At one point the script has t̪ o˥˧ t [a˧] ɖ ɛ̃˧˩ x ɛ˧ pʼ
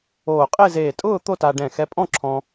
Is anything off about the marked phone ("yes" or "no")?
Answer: no